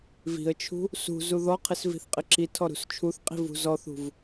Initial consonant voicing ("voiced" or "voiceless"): voiced